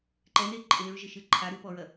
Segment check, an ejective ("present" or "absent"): present